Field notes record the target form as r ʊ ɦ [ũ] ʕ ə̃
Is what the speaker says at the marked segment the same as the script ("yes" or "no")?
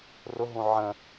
yes